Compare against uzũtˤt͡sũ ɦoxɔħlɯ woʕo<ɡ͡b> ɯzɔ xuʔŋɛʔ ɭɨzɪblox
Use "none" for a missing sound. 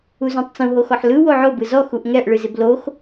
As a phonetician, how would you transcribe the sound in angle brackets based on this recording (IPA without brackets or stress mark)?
b